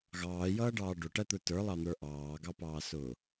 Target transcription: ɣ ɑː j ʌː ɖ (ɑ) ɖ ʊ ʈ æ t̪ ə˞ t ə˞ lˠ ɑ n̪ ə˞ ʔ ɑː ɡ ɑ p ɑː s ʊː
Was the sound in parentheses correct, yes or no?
no